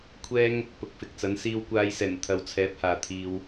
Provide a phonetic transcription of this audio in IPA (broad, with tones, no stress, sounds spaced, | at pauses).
kʷʰ ɛː˥ ŋ | p ʊ˨ k̚ f ɪ˨ k̚ t͡s ɐ˨˥ n s iː˧ w kʷ aː˧ j s ɛː˨˩ n t̪ʰ ɐ˨ w t͡sʰ ɛː˨˥ p̚ h aː˨ t̪ʰ iː˧ w